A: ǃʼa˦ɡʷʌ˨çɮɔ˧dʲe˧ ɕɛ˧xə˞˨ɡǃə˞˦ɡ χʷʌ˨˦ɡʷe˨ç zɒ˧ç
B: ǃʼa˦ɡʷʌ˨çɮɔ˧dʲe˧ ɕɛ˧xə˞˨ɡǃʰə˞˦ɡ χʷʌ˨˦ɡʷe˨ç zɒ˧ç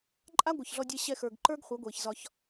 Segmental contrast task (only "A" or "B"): A